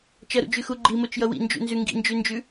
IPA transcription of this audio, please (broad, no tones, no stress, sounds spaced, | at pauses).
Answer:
t͡ʃ ʌ ɾ ṵ d͡ʒ ʉ x u ɡ͡ǃ i m o t͡ʃ j ʌ w ḭ n d͡ʒ ṵ n z ʉ ŋ ɡ ḭ n d͡ʒ ʉ n d͡ʒ ʉ